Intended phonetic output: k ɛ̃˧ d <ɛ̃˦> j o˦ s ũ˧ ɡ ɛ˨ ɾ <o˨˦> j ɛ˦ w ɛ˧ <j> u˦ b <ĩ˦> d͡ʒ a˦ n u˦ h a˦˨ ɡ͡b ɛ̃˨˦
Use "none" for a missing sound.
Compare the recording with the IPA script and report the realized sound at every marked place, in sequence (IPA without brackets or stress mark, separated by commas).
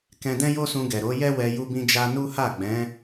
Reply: ɛ̃˦, o˨˦, j, ĩ˦